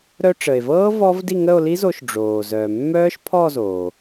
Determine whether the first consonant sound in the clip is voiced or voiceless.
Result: voiced